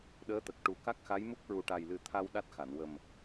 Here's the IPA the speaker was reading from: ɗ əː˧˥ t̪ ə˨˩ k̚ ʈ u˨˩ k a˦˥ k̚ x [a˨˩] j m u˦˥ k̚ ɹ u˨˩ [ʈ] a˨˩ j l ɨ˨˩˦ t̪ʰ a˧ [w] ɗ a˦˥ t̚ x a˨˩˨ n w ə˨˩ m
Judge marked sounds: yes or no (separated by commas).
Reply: no, yes, yes